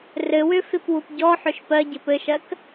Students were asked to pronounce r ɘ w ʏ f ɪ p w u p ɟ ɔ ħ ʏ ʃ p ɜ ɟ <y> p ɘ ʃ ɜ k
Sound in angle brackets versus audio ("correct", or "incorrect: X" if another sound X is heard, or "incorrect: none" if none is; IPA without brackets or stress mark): incorrect: ɪ